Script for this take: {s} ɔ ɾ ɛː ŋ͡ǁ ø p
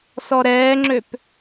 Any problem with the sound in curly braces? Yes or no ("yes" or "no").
no